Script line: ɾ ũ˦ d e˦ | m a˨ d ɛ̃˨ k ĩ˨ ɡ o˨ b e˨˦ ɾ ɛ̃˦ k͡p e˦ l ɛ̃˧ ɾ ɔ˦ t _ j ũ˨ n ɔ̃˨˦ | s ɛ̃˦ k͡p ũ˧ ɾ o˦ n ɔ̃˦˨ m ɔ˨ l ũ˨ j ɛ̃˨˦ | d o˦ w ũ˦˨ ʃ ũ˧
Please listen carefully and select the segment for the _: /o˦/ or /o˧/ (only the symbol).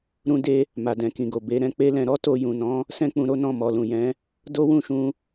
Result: o˧